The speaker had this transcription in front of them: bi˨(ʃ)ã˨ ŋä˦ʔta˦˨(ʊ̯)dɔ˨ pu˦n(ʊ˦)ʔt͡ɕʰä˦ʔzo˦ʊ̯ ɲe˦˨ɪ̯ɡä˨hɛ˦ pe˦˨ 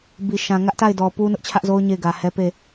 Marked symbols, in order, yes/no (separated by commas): yes, no, yes